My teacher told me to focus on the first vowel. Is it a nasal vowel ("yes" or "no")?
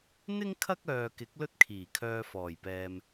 no